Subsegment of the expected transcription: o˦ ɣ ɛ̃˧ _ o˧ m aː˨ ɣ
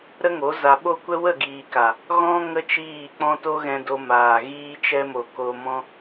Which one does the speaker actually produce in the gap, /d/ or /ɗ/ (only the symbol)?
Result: d